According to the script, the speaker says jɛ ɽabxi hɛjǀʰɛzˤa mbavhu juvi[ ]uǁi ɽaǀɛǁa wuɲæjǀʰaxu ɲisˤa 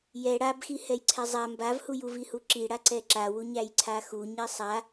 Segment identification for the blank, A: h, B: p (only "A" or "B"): A